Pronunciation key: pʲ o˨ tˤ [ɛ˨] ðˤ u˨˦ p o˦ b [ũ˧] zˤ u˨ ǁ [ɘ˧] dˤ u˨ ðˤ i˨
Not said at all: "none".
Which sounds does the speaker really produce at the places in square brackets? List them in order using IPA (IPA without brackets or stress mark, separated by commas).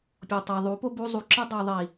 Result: ɛ˨, u˧, ɘ˦